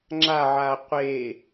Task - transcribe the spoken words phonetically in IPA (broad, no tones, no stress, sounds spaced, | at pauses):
ŋ͡ǁ a ʕ a qʷ e